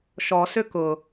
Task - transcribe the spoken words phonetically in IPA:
ʃ ɔ s ʏ k ʊ

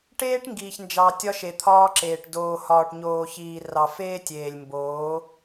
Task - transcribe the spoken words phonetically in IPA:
ʈ eː˦ ʈ ŋ ɡ iː˨ ç n d͡ʒ ɑ˨ tʲ ɒ˦ ʃ e˨ t̪ʰ ɒː˦ ǁ eː˨ ʈ d oː˨ h ɒː˨ ʈ ɲ oː˨ ç iː˨ r ɑ˨ f eː˦ tʲ eː˨ lʲ m b oː˨˦

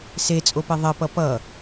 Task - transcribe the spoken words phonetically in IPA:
s e t͡sʼ o p e ðˤ e p ʌ p ʌ

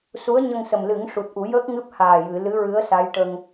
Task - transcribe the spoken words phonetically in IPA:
s u˧˥ ə̯ ɲ ə˧ ŋ s ə˨˩ m l ɨ˨˩˦ ŋ ʂ u˨˩ t̚ ʔ u˨˩˦ j əː˦˥ k̚ ŋ ɨ˦˥ p̚ h aː˨˩ j ɨ˨˩˨ l ɨ˧˥ ɹ ɨ˧˥ ə̯ s a˧˥ j ʈ ə˧ ŋ

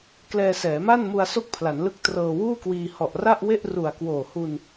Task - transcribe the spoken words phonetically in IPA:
k l ɛː˧ s ɛː˩˦ m a˥˩ n m u˧ a̯ s o˥˩ k̚ pʰ l a˩˦ n l ɯ˦˥ k̚ t r ɤː˧ w uː˥˩ k w iː˧ h ɔ˨˩ ʔ r a˥˩ ʔ w e˥˩ ʔ r u˨˩ a̯ k w oː˨˩ h u˧ n

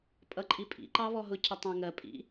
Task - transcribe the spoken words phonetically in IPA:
pʼ ʌ ǃʼ i pʼ ḭ ǃ ɑ β ɔ ɦ ʊ cʰ ʌ tˤ æ̃ ŋ ɜ pʼ ḭ

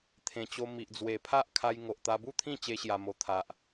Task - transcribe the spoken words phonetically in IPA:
t̪ʰ ẽ˨˩ t͡ɕ o˧ m i˨ ʔ d͡z w e˨˩ pʰ a˦ ʔ kʰ a˧ j ŋ o˨ ʔ t̪ a˧ b u˥˧ t̪ʰ ĩ˥˧ t͡ɕ e˦ ɕ j a˧ m o˧ t̪ʰ a˨ ʔ

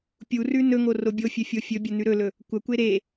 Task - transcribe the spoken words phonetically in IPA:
pʲ u r ʉ n ɵ ŋ o r o bʲ o fʲ ɵ fʲ o fʲ ɵ bʲ ɐ n ʉ ɾ ɵ l ɵ | kʷ ɐ kʷ e ɾ e

